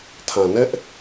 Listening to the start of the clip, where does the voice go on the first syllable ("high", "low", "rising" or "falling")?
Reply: low